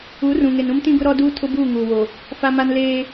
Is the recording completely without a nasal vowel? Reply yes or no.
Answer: no